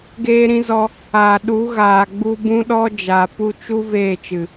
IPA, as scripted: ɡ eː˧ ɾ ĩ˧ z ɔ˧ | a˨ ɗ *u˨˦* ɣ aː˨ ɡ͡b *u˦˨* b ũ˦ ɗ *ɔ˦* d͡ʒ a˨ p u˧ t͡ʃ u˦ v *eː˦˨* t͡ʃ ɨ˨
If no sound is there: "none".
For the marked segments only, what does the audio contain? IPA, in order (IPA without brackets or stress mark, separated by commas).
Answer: u˨˦, u˧, ɔ˦, eː˦˨